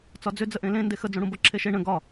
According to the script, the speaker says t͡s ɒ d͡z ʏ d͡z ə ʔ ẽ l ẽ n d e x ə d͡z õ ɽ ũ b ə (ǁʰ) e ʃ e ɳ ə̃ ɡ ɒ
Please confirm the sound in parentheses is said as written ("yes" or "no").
yes